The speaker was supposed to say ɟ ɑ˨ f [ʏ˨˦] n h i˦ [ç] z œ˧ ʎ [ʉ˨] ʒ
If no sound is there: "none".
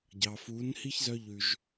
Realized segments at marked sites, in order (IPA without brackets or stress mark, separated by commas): u˨˦, ç, ʉ˨